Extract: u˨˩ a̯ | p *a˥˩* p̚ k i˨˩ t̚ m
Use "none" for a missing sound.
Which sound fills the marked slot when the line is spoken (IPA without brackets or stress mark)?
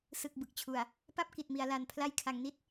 a˥˩